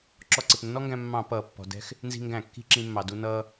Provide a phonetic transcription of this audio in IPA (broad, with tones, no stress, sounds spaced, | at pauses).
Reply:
ǁ ɔ˧ ǀ ɪ˩ p nː ɔ˥ ŋ ɡ æ̃˧ mː ɑ̃˧˩˧ p ʌː˩ pː ɔ̤˩ d ɛ̤˧ x | n z i̤˧ ŋ ɡ æ̃˧˩˧ kː i̤˧ ǁ ĩ˧ mː ɑ˩ d u˧ n ʌː˧